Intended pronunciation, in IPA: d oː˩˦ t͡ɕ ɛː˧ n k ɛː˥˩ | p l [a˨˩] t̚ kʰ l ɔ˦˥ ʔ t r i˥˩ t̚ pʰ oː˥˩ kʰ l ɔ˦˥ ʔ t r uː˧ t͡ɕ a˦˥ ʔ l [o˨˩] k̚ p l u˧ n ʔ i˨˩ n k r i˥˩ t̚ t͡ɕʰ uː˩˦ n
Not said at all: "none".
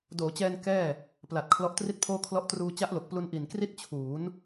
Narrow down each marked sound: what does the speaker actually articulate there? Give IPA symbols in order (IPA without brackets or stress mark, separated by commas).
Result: a˨˩, o˨˩